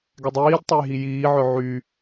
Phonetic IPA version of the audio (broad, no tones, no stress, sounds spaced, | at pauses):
ɡ ɛ dˤ iː d tˤ o j ɦ i j iː ʕ œ ʕ y